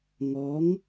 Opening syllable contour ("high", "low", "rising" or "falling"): rising